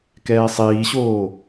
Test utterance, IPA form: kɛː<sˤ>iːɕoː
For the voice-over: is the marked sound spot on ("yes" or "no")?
yes